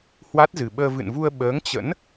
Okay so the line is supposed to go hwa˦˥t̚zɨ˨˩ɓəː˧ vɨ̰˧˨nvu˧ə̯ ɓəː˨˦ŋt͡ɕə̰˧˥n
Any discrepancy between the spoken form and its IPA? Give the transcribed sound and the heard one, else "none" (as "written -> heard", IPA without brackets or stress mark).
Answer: none